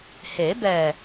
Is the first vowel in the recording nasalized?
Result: no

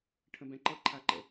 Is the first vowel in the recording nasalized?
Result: yes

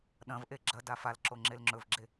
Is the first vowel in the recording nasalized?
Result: yes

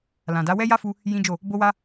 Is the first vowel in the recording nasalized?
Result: yes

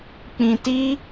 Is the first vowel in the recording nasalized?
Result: yes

